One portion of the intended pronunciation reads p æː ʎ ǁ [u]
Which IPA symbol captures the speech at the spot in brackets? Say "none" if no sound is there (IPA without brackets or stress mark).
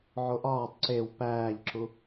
u